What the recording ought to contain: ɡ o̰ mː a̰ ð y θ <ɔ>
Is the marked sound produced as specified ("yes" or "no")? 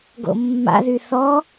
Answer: yes